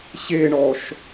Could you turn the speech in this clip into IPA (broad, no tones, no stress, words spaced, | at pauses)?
ɕeɳɔʃ